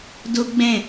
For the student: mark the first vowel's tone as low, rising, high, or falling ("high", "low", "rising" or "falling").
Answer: high